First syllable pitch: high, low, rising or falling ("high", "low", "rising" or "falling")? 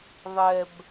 low